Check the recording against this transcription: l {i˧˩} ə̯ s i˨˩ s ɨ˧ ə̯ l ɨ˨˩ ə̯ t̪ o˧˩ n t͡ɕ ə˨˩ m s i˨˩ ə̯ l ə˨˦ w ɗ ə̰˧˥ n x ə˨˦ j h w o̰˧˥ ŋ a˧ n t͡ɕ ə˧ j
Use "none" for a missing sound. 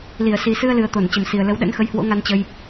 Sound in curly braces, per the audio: i˧˩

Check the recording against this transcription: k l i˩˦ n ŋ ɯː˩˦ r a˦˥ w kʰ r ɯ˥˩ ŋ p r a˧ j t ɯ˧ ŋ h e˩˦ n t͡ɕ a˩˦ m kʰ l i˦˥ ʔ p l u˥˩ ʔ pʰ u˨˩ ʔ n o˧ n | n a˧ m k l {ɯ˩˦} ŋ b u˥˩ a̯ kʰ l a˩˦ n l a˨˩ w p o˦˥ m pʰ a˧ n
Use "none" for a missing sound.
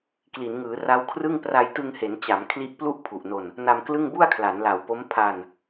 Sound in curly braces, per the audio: ɯ˥˩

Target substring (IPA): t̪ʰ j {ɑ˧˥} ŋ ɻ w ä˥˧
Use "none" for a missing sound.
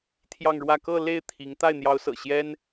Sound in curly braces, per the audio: ɑ˥˧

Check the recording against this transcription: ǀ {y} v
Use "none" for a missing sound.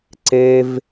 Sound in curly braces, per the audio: e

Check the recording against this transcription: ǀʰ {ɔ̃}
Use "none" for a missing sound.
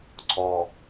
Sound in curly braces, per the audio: ɔ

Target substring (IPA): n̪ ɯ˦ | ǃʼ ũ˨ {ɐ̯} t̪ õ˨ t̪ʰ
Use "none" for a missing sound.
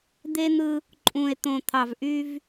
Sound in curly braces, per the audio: e̯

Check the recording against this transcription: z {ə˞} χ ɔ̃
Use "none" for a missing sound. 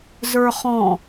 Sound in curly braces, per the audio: ə˞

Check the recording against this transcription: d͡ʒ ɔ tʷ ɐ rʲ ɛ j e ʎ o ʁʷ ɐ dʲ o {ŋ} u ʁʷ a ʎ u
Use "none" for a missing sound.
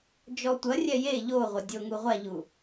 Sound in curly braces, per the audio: ŋ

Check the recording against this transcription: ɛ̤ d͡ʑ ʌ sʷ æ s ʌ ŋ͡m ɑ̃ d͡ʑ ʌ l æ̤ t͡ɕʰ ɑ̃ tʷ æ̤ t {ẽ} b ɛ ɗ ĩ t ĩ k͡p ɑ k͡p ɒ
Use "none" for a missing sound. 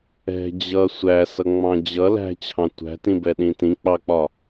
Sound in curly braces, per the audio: ĩ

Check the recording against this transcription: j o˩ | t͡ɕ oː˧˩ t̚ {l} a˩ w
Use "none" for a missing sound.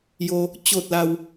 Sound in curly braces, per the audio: l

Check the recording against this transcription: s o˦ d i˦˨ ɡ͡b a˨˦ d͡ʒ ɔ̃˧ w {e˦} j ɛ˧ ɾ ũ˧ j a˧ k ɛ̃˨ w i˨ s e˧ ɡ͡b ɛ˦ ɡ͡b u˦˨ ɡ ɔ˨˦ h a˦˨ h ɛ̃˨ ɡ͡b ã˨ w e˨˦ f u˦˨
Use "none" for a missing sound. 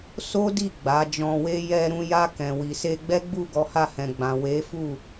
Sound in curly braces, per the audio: e˦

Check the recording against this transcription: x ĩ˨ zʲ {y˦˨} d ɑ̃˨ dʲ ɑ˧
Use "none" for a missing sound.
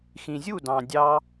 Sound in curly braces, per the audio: u˦˨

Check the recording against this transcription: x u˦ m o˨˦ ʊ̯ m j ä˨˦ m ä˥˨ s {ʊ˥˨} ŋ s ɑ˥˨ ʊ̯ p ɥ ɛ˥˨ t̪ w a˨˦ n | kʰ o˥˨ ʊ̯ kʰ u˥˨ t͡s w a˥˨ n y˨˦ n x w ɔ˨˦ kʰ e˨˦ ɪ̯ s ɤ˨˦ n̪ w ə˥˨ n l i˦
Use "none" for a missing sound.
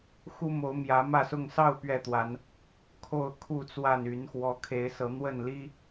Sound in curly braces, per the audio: ʊ˥˨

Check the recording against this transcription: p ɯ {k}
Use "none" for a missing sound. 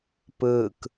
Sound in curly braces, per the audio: k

